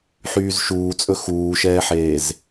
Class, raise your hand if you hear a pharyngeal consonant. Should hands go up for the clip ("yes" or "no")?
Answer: yes